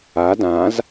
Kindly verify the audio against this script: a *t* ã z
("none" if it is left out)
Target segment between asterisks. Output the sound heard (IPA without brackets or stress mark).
d